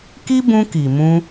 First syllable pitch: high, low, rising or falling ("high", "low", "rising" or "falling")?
high